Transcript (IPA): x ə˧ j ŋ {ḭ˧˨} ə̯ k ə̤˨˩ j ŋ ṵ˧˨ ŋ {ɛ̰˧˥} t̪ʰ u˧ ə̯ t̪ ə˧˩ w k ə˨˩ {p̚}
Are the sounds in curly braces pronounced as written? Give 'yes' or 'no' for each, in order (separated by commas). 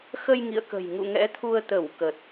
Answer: yes, yes, no